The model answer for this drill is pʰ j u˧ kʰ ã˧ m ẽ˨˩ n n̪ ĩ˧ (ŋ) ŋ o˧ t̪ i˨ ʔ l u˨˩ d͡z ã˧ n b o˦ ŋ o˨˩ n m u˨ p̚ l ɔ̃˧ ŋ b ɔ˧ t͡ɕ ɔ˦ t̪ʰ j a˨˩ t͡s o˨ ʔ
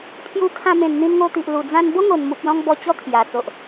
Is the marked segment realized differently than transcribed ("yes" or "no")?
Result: yes